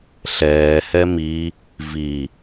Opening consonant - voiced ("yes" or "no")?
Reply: no